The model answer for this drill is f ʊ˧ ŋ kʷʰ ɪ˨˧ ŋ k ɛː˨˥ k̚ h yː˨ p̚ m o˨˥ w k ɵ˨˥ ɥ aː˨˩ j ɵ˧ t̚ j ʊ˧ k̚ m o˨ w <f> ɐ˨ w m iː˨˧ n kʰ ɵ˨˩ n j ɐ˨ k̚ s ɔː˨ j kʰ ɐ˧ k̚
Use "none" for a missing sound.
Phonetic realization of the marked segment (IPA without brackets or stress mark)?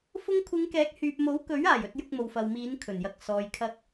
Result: f